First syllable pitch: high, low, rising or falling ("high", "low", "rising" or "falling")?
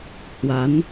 rising